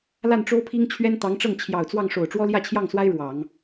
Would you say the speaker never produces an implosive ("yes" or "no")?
yes